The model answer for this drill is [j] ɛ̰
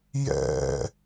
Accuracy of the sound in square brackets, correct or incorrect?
correct